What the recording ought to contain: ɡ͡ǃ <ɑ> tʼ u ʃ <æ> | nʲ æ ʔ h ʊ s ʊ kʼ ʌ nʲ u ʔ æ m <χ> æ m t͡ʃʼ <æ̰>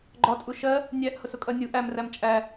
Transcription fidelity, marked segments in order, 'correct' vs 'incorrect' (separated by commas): incorrect, incorrect, incorrect, incorrect